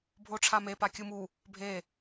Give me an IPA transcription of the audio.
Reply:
bʱ o ʈ͡ʂʰ a m e p a kʲ ɯ m u | bʱ e

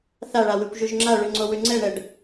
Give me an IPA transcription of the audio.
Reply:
θ a ɭ a w ʉ kʷ ʒ ʉ ʒ ŋ͡ǁ a ɭ ʉ ŋ͡ǀ o w ʉ ŋ͡ǀ ɛ ɳ ɛ ɖ

